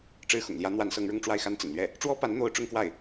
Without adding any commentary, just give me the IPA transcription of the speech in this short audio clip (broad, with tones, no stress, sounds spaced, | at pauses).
ʈ͡ʂ ɻ̩˥ x ʊ̰˨˩ ŋ l j ä˧˥ n̪ w a˧˥ n s ɤ˧˥ ŋ ɻ ʊ˥˧ ŋ ʈ͡ʂ w a˥˩ ɪ̯ x a˥ n t͡s ə̰˨˩ n l ɥ ɛ˥˩ | ʈ͡ʂ w ɔ˥ p a˧˥ n n̪ o˥ ʊ̯ ʈ͡ʂ ʊ˥ ŋ k w a˥˩ ɪ̯